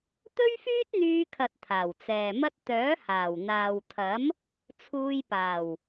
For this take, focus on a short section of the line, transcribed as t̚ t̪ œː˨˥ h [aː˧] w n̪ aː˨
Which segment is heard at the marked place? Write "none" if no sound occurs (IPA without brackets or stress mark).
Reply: aː˨˩